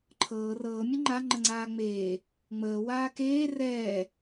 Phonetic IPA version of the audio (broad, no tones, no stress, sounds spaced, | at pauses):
ǃʰ ɤː r ɤː mʲ ə ŋ͡ǃ a ŋ͡ǃ ə ŋ͡ǀ aː ŋ͡m eː | ŋ͡m əː w aː k eː r ɛː